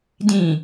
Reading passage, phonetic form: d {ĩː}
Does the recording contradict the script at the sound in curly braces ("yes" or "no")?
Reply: yes